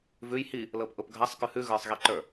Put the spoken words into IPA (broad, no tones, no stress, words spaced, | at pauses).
vʉj hi | lɤpʔʊpɡʱasˤ kʉhʉ ɣə˞sˤɣiǃə˞